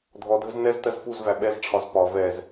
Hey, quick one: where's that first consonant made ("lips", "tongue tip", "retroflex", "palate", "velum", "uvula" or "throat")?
tongue tip